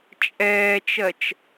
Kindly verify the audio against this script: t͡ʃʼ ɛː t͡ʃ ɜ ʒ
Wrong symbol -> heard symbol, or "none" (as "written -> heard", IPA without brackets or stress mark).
ʒ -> t͡ʃ